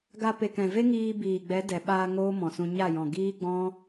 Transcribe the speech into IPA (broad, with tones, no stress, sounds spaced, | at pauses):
ɡ a˧ p e˨ k ɛ̃˨ v e˦ ŋ iː˧ b iː˨ ɡ͡b ɛ˨˦ d ɛ˨ ɓ aː˧ ŋ oː˦ m ɔ̃˨ s ũ˧ ɲ a˦˨ j ɔ̃˨ ɡ iː˦ ɡ͡b ɔ̃˦